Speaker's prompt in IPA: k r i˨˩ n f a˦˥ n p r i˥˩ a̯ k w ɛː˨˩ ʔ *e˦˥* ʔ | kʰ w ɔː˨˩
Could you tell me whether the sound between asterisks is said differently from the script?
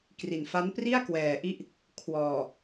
yes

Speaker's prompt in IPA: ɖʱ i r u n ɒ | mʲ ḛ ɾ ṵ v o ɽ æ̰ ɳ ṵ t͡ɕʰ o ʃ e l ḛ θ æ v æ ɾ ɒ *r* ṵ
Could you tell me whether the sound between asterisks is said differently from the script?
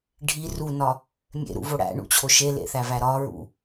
yes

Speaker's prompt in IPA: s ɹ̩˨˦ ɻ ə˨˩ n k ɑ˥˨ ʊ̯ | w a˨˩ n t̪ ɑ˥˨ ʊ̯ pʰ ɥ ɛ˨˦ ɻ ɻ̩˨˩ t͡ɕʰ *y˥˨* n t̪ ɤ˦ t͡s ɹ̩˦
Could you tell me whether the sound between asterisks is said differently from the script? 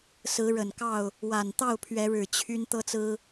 yes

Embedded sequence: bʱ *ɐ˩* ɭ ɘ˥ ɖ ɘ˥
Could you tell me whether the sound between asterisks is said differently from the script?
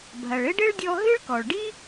no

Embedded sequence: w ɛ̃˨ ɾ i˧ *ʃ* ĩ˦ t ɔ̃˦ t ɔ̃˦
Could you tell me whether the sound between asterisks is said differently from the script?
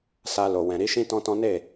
no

